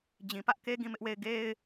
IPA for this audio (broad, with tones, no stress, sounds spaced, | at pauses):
d͡ʑ ĩ˨ p ä˦ ʔ k e˦ ɡ ĩ˦˨ m ɪ˦ ʔ w e˦˨ ɪ̯ ɡ e˦ ɪ̯